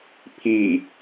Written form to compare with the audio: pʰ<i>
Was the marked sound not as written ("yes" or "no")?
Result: no